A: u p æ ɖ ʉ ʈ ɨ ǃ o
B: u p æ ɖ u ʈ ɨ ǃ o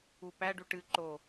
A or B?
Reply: A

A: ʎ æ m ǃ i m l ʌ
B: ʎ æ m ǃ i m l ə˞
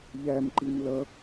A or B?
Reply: A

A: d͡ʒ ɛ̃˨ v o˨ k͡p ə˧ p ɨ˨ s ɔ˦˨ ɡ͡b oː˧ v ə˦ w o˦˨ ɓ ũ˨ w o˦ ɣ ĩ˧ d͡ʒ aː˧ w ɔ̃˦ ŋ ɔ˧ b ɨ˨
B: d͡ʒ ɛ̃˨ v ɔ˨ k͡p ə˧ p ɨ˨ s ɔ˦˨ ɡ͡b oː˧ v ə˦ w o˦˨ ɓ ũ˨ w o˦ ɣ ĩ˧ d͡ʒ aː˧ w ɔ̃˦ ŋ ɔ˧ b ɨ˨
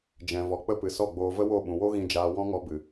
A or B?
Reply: B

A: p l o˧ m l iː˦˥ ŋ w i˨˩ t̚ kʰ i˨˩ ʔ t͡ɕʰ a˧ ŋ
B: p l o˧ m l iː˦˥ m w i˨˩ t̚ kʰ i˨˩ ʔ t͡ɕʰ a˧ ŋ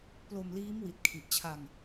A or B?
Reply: B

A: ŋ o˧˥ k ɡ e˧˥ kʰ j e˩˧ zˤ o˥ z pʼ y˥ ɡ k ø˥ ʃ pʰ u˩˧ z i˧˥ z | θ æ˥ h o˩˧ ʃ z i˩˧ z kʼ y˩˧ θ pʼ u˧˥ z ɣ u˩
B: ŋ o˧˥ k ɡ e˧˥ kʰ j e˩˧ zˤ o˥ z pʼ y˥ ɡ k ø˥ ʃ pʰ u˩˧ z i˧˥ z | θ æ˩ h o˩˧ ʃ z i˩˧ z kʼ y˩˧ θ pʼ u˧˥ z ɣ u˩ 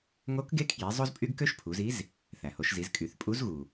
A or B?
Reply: B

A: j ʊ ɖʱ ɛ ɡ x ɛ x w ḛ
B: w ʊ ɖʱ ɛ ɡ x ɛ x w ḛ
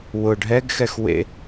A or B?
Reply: B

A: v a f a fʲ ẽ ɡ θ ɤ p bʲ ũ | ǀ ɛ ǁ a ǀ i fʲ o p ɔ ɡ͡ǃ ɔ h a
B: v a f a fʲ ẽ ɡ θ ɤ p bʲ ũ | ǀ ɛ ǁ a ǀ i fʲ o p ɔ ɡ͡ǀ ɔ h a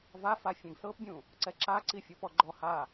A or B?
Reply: A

